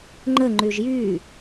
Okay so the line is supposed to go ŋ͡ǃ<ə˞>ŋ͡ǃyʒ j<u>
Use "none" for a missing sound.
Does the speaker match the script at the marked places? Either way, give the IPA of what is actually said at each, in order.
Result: ə, y

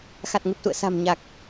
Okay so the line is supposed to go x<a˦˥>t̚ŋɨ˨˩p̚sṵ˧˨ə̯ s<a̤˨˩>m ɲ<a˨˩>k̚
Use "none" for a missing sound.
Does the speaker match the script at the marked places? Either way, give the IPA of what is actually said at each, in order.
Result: a˨˩, a̤˨˩, a˨˩

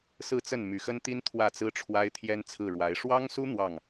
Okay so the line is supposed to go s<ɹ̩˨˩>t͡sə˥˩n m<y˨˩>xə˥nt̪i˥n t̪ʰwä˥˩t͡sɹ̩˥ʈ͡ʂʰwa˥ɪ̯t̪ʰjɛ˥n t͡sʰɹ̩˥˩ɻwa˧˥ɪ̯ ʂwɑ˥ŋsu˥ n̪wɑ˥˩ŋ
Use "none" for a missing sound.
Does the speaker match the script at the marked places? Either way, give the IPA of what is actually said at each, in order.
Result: ɹ̩˥˧, y˨˩

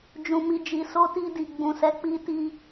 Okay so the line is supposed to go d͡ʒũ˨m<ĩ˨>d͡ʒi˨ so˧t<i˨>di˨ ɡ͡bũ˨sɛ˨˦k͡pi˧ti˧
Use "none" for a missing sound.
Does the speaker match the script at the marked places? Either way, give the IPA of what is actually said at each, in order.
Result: i˨, i˧

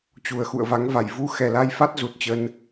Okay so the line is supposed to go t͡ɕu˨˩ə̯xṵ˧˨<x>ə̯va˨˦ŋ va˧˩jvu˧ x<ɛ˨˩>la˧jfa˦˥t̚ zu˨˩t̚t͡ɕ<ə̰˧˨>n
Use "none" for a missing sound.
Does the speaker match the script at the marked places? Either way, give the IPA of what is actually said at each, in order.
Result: none, ɛ˨˩, ə˧

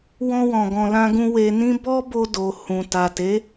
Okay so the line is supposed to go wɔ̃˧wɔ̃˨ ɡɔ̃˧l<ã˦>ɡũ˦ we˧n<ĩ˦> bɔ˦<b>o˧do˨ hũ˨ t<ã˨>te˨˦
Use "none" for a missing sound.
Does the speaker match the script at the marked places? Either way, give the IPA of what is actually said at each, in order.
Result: ã˦, ĩ˦, b, a˨

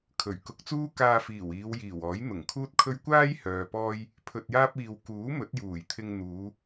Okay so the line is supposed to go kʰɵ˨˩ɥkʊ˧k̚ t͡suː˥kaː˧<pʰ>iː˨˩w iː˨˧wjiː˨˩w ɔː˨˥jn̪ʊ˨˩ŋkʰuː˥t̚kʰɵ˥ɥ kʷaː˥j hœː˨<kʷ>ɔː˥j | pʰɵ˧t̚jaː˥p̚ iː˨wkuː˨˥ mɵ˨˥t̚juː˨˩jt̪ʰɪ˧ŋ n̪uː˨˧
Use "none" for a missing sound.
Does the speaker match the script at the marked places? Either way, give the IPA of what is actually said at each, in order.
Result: f, p

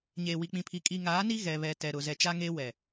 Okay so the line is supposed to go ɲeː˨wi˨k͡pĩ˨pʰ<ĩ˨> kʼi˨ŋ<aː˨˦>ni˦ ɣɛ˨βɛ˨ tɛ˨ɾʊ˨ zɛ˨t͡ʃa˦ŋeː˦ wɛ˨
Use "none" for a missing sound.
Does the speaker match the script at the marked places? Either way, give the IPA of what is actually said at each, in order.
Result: i˨, aː˨˦

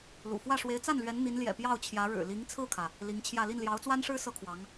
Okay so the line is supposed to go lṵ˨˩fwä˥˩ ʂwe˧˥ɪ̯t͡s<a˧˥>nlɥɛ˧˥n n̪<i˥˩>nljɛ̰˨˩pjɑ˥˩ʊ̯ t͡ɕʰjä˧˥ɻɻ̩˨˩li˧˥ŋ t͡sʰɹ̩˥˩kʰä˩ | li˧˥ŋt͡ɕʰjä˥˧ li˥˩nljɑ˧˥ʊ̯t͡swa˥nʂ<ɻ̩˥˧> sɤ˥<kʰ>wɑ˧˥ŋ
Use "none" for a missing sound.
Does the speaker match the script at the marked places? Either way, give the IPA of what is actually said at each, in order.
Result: a˥˩, i˧˥, ɻ̩˥, kʰ

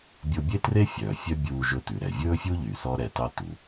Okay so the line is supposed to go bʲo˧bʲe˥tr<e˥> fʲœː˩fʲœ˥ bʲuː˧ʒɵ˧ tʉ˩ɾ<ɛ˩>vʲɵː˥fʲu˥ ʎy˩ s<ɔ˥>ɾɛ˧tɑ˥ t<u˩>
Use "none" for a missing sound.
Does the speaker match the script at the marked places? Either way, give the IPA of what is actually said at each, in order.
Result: e˥, ɛ˩, ɔ˥, u˩

